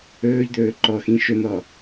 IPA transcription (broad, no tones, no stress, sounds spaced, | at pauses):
ɵː ʎ d̪ ɵː ǃ ɔ x ĩ ʃ ɵ n̪ ɔ